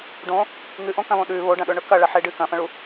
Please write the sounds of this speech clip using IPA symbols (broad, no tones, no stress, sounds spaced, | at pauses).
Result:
ɖ õ | ŋ ɨ ʔ õ k ɐ̃ β õ ɗ ʉ β o ɖ ɐ̃ ɗ ɵ ɳ ɵ k ɐ ɭ ɐ ħ e ɖ ɨ k ɐ̃ f ɐ̃ ɭ u